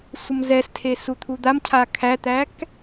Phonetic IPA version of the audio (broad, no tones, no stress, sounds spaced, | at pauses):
sʷ ə m z ɛ s tʰ e s u t̪ʰ u d̪ a m cʰ a kʰ æ t̪ æ k